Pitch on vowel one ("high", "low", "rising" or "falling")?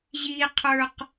high